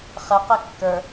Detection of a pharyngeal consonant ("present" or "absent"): absent